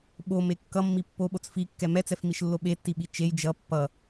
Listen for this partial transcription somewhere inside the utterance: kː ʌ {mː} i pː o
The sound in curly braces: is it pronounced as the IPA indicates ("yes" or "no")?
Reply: yes